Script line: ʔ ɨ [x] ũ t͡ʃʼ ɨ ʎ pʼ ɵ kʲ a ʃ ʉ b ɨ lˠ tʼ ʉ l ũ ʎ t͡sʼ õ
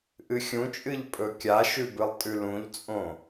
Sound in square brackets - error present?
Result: yes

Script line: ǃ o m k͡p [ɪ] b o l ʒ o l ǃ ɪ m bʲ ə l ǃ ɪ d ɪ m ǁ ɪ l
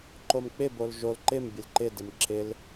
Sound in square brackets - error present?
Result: no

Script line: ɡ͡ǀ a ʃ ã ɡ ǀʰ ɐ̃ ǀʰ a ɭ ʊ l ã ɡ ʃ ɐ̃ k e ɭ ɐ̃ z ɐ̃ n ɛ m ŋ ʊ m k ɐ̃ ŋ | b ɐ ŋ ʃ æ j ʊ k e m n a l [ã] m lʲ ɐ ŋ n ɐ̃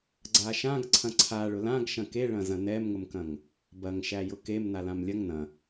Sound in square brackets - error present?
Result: no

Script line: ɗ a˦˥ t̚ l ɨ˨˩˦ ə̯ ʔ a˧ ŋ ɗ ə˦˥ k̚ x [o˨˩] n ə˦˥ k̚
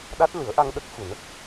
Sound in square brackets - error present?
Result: yes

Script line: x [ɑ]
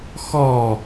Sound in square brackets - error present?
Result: yes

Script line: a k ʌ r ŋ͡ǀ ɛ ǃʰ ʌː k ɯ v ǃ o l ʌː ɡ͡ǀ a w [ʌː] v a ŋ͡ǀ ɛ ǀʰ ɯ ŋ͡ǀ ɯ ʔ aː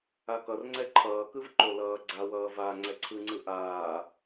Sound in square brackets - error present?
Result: no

